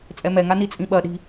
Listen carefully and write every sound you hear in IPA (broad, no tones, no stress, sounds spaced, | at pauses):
t͡sʼ ɛ m ɛ ŋ a n i t͡sʼ ĩ ɓ ɐ ɗ i̤